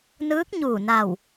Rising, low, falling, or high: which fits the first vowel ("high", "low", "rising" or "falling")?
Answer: rising